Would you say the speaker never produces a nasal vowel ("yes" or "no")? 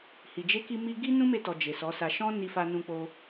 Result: no